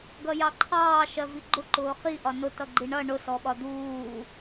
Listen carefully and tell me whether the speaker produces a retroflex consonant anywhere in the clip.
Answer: yes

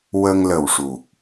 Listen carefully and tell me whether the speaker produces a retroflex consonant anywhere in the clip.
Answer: yes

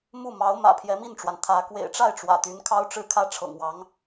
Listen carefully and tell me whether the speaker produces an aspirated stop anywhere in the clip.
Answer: yes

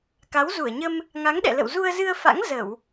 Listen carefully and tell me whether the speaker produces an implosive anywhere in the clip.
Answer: yes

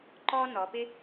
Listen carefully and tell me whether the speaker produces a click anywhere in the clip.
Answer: yes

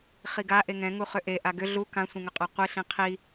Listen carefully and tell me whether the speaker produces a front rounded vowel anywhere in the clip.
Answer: yes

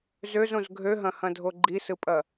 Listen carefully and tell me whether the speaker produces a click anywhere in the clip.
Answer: yes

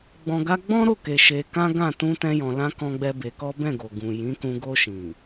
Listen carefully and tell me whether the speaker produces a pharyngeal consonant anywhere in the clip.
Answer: no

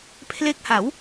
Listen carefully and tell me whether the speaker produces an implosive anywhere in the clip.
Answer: no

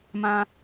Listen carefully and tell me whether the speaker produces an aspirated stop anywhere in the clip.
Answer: no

